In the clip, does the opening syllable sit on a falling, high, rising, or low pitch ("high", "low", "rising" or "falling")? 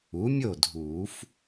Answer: rising